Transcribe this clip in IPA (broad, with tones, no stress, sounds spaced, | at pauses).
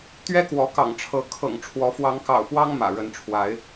t̪ ɥ ɛ˦ k w ɔ˨˦ k ɑ̰˨˩ ŋ ʈ͡ʂʰ ɤ˨˦ kʰ ɤ̰˨˩ ŋ ʈ͡ʂʰ w ɔ˨˦ f w ɑ˨˦ ŋ k ɑ̰˨˩ ʊ̯ p w ɑ˦ ŋ m ä̰˨˩ ɻ ə˨˦ n ʈ͡ʂʰ w a˨˦ ɪ̯